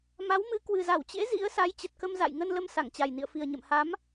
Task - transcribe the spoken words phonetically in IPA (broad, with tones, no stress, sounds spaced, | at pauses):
m a˨˦ w m ɨ˨˦ k w ɨ˨˩ z a˧˩ w t͡ɕ ḛ˧˥ z ḭ˧˥ ə̯ s a˨˦ j t͡ɕ ə˨˩ t̚ k ə˧ m z a̰˧˨ j ŋ ə˧ n l ə˧ m s a˧˩ ŋ t͡ɕ a˨˩ j n ḭ˧˨ ə̯ f i˨˩ ə̯ ɲ ə̰˧˨ m h a˨˦ m